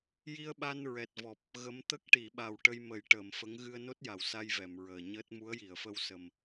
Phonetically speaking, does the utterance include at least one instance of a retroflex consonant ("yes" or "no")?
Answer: yes